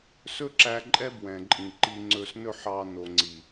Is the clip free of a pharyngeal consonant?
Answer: no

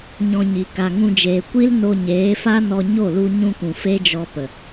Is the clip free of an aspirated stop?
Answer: yes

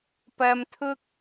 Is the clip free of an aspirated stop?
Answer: no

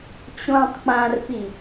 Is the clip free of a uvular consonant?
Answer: yes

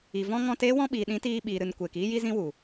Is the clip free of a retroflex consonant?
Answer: yes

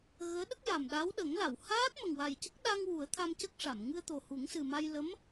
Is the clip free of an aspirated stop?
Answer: no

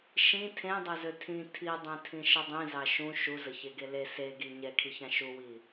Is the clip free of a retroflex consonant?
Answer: yes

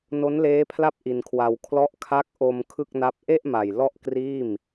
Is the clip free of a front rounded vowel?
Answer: yes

